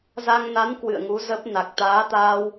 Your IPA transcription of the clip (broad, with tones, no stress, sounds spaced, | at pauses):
z a˧ ŋ n a˨˦ n k w ɨ̰˧˨ ə̯ ŋ u˨˦ z ə˦˥ p̚ n a˨˩ k̚ t̪ aː˨˦ t̪ aː˧ w